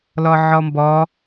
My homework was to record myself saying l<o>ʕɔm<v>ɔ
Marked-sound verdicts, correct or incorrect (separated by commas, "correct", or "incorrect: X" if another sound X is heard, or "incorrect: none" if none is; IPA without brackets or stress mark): incorrect: ɔ, incorrect: b